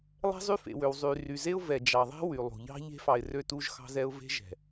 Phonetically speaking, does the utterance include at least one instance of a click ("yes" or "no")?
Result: no